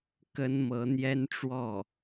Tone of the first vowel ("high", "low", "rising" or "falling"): high